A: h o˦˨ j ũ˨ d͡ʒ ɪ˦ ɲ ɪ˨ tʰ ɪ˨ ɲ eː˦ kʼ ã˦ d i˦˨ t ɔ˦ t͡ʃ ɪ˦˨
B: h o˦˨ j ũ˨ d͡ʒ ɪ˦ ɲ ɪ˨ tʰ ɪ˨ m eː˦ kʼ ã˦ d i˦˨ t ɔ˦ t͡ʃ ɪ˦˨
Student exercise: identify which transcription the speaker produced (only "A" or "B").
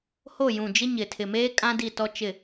B